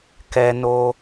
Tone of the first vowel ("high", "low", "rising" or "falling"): high